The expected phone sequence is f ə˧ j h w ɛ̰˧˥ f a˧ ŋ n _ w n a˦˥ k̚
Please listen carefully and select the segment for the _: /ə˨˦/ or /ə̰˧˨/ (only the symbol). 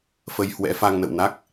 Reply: ə̰˧˨